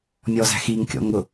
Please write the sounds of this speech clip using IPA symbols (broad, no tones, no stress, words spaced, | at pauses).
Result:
mʲɔzæ̤x iŋkʲɔ̰ŋʊ